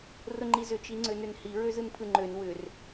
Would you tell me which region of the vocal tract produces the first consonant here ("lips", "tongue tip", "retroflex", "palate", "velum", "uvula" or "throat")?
tongue tip